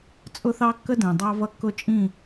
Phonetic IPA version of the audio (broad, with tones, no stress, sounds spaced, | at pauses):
t͡sʼ ʊ˦ θ ɑ˦ kː ə˦ d ɛ̃˨ dˤ ɑ˦ v ʌ˦˨ kː ʊ˦ t͡ʃʼ ĩ˦˨